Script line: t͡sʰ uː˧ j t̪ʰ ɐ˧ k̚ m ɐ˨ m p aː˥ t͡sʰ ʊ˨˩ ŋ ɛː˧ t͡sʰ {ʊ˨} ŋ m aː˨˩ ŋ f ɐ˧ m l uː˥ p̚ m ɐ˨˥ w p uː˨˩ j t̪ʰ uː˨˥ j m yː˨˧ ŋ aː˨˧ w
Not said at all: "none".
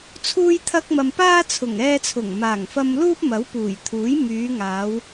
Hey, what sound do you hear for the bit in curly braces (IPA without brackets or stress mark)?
ʊ˨˩